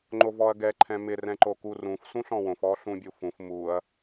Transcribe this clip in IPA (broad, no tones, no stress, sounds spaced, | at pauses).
ŋ͡ǃ o v ɔ ɐ̯ ɡ ɛ ǃʰ ɛ̃ m ɪ r ɛ̃ ǃ o k u r ũ f s ũ ɬ ɔ̃ w õ f ɔ ɬ ũ bʲ u f ũ f m u ɐ̯